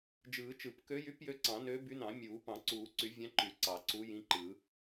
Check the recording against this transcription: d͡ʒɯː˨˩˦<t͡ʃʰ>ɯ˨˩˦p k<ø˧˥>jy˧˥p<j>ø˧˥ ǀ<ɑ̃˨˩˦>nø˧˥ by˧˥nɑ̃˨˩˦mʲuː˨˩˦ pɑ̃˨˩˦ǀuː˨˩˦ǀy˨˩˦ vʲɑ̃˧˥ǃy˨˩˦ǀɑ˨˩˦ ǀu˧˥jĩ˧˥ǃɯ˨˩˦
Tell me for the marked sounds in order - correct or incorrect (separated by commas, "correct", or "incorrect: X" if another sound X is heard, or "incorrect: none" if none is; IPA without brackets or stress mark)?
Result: incorrect: t͡ʃ, correct, correct, correct